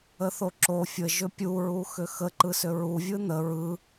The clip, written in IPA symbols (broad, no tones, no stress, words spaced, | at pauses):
əθoǁo fʲə ʒʏpʲu ɹuxʏxə ǃɯsʏɹu vʲɯn̪ə ɹɯ